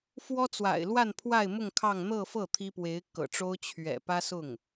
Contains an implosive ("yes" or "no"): no